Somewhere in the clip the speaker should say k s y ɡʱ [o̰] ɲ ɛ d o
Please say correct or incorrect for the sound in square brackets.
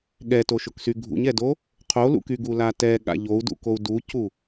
incorrect